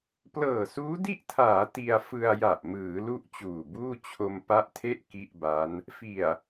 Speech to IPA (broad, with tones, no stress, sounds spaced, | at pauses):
p l ɤː˨˩ s uː˦˥ d i˥˩ ʔ tʰ aː˩˦ t i˧ a̯ f ɯ˧ a̯ j a˨˩ ʔ m ɯː˩˦ l u˥˩ ʔ t͡ɕ uː˨˩ b uː˥˩ t͡ɕʰ o˧ m p a˦˥ ʔ tʰ e˥˩ ʔ k i˥˩ ʔ b a˦˥ n | f i˨˩ a̯